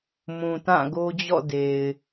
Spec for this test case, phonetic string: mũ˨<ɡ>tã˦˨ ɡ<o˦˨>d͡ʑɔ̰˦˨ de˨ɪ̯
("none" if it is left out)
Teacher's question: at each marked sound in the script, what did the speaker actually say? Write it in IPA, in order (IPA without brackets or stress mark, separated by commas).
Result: none, o˦